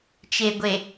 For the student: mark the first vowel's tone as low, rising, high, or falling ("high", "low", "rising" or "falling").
low